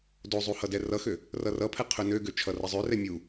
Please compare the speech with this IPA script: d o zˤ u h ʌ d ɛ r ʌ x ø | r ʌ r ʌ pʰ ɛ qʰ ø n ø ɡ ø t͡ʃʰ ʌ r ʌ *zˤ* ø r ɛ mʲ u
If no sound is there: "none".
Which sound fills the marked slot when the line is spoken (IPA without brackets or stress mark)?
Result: zˤ